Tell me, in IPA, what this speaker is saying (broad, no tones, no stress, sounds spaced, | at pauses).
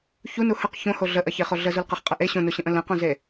ç u n u h ə q ç õ h o ɮ ə ʔ ɐ ç e χ o ɮ ə z u l q ə χ qʼ ə ʔ e ɕ õ n u ɕ ə̃ ʔ ə̃ l ə̃ q õ z e